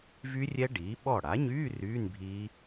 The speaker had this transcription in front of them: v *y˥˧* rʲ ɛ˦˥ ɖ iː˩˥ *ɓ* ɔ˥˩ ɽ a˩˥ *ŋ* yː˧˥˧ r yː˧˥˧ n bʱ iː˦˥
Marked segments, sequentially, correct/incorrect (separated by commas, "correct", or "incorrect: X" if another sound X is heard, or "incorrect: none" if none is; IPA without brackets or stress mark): incorrect: y˦˥, correct, incorrect: ɲ